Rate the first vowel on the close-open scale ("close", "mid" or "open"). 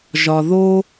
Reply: open